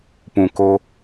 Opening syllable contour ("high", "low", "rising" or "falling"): low